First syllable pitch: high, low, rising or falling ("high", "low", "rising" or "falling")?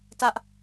high